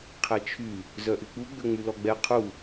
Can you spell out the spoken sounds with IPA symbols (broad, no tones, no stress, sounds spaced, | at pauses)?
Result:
qʰ ɛ t͡ʃʰ y | z œ ʔ y k͡p u ɡ͡b ø ŋ͡m y l ɔ ɡ͡b ɛ qʰ u